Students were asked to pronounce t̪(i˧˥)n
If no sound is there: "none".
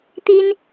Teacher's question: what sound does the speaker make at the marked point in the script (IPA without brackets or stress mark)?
i˥